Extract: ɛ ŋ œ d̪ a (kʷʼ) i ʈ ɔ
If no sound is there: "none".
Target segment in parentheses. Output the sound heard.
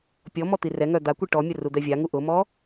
kʷ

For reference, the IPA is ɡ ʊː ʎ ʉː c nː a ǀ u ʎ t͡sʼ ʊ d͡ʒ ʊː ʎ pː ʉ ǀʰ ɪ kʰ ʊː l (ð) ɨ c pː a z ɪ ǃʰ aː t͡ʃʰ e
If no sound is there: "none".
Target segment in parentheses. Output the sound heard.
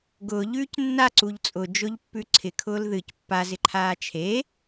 ð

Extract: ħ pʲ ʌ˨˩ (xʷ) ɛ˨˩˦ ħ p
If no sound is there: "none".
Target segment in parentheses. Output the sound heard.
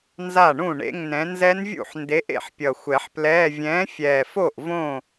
xʷ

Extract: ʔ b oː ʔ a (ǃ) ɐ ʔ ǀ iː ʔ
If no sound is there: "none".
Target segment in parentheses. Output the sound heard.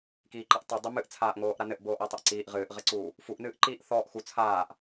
tˤ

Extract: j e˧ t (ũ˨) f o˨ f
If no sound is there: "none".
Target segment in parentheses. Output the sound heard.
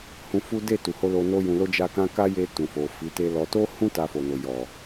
ũ˨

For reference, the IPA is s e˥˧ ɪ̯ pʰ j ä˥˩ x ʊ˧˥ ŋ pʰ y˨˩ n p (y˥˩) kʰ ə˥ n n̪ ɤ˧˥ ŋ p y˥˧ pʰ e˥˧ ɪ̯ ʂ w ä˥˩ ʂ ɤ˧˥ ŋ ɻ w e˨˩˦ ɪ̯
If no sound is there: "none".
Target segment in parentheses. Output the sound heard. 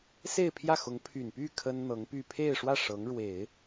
y˥˩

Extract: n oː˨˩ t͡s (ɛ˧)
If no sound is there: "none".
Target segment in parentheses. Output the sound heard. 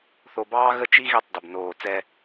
ɛ˥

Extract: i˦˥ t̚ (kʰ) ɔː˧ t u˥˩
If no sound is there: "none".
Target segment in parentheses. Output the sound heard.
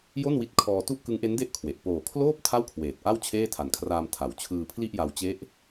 kʰ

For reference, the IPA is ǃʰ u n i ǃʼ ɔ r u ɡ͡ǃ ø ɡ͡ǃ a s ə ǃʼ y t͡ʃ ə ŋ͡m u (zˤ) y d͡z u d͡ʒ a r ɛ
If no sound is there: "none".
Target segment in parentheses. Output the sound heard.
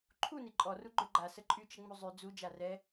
zˤ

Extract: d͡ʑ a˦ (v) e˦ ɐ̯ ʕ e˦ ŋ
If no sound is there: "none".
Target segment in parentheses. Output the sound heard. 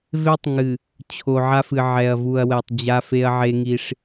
f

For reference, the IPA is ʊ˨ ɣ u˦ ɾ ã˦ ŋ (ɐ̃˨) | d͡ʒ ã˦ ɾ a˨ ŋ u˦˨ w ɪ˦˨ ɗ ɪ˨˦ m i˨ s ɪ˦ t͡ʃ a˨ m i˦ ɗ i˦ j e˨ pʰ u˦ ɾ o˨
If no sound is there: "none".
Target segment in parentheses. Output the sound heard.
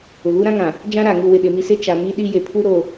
ã˨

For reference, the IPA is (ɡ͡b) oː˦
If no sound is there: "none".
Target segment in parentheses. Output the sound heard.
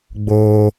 ɡ͡b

